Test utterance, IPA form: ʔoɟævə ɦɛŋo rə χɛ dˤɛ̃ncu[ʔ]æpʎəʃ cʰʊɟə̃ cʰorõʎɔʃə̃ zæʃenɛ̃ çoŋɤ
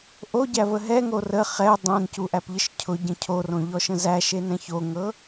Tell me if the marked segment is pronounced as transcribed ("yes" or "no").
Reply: yes